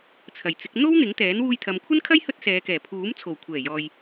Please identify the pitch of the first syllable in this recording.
low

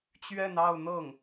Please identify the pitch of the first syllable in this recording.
falling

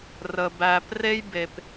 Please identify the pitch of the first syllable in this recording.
low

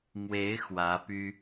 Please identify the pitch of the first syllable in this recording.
rising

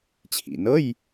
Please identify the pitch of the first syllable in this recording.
low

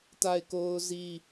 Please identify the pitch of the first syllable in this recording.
falling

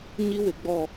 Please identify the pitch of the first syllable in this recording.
high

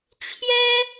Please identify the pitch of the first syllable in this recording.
high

